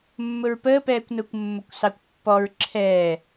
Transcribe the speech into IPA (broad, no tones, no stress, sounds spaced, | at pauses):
mː ʊ ɹ p əː p ɛː kʷ n ʊː kʷ mː o kʷ s ɑ kʷ pː ɔ ɹ ǁʰ ɛː